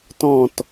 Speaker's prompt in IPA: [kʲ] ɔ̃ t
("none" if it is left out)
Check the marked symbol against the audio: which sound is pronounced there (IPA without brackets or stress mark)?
t